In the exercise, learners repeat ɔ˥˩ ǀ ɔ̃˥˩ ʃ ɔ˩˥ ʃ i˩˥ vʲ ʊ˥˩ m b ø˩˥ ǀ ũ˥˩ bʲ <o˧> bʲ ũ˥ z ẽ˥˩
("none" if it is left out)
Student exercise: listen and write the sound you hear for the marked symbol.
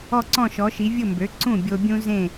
o˧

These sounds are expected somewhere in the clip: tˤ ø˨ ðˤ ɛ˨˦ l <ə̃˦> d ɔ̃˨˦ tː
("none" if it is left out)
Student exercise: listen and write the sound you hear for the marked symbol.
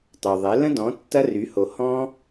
ə̃˦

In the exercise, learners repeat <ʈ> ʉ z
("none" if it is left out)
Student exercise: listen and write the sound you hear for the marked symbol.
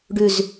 ɖ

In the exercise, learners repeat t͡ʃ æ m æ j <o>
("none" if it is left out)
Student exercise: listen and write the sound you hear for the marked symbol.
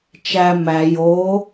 o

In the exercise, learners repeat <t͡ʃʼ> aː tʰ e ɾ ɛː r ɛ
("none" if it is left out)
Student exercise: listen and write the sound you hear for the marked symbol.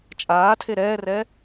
t͡ʃʼ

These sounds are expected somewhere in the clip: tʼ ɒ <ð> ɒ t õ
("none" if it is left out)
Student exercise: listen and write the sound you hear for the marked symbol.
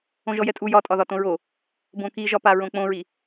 ð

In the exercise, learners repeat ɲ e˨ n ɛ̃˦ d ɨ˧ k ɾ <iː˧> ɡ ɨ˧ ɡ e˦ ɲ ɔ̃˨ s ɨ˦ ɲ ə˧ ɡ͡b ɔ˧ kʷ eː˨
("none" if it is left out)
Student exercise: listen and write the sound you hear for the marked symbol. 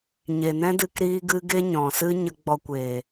iː˧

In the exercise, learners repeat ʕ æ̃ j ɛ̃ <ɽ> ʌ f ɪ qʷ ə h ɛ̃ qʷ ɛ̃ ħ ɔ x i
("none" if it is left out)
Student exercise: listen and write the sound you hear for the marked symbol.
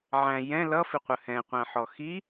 l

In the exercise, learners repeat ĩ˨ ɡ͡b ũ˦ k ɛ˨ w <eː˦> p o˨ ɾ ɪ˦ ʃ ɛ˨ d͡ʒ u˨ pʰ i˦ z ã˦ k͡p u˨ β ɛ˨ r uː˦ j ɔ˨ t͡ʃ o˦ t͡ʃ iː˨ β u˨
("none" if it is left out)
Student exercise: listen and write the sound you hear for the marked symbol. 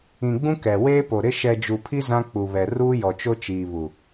eː˦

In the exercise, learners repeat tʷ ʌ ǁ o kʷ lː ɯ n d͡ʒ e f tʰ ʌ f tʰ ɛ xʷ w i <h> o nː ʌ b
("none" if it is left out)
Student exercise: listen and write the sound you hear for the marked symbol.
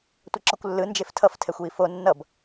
f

